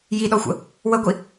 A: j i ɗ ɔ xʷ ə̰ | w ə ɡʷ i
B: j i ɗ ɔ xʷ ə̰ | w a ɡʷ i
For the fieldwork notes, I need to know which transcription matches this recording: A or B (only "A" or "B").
A